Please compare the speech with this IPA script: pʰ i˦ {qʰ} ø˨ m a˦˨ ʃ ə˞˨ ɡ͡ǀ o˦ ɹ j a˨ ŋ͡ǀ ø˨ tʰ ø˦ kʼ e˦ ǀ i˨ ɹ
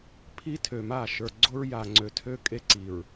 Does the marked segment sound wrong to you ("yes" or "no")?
yes